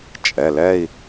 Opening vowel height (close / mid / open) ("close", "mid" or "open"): mid